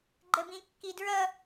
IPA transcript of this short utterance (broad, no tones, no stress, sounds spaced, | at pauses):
ɡ͡ǃ ə b ĩ kː i d ɹ ʌ